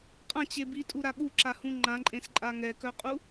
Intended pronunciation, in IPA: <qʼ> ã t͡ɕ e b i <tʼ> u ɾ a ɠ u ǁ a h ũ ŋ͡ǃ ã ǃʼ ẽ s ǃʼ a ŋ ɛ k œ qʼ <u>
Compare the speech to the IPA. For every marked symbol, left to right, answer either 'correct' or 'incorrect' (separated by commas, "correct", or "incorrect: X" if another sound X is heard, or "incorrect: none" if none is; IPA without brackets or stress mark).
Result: correct, correct, correct